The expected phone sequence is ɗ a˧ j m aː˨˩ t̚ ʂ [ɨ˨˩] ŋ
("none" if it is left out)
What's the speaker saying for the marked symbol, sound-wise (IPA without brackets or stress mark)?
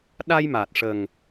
ə˨˩